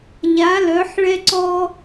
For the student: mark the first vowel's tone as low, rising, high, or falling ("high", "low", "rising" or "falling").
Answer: rising